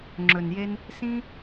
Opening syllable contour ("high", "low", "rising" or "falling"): low